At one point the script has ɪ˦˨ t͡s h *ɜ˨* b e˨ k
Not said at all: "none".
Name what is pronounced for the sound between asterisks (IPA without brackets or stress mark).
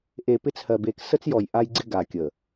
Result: ɜ˨